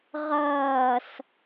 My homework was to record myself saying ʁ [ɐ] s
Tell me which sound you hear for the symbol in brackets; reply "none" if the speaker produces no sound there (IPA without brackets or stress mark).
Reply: ɐː